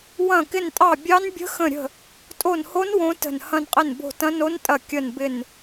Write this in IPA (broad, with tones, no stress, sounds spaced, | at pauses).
w ɐ̃˦˨ k ɪ˦˨ n tʼ ɑ˦˨ bʲ ɑ˦˥ n bʲ ə̤˦˥ x ə̃˦˨ ɾʲ ə̤˦˨ | tʼ o˦˨ n h o˦˥ n w õ˦˥ t ə̤˦˨ n h ɐ̃˦˨ n qʼ ɪ˦˨ n b o̤˦˨ t ɐ̃˦˥ n o˦˥ n tʼ ɐ˦˨ kʲ ə˦˨ n b ɪ˦˨ n